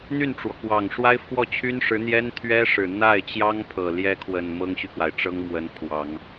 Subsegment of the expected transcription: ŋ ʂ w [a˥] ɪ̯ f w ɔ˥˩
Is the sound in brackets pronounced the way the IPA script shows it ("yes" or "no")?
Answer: yes